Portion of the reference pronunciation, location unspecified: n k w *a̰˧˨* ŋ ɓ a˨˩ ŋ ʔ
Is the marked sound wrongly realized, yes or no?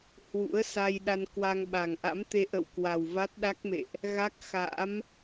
yes